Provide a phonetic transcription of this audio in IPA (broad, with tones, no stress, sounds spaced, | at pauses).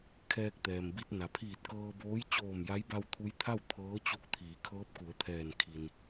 kʰ ɛː˧ k̚ t̪ ɛː˩ m b i˧ t̚ n a˩ pʰ iː˧˩ t̚ k ɤː˧ b oː˧˥ j t͡ɕ oː˧˩ m j a˧˥ j b a˧ w t̪ʰ u˧˥ j t̪ʰ a˥˨ w t̪ʰ ɤː˧˥ t͡ɕ u˧˥ k̚ t̪ʰ iː˩˧ kʰ ɤː˧˥ p̚ k u˩˧ ə̯ t̪ʰ ɛː˧˩ n kʰ i˩ n